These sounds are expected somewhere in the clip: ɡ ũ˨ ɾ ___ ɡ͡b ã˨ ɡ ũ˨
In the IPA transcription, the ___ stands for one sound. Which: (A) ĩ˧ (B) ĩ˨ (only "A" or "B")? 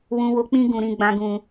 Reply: B